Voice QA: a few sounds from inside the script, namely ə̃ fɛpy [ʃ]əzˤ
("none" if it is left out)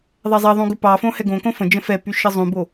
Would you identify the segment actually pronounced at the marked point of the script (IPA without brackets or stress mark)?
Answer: ʃ